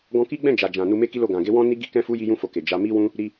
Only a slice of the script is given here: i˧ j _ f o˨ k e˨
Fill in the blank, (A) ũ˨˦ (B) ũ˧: B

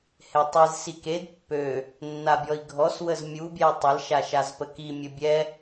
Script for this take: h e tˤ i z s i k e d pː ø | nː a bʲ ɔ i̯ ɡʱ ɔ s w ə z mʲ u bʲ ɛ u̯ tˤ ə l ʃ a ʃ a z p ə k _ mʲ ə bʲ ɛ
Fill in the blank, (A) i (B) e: A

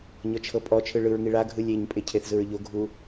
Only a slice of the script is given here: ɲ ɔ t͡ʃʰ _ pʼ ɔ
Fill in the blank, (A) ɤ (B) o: A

